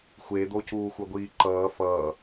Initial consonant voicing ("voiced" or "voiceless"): voiceless